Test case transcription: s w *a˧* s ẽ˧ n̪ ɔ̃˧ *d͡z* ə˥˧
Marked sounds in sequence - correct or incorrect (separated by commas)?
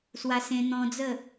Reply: correct, correct